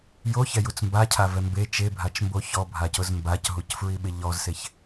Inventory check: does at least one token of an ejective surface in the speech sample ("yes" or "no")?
no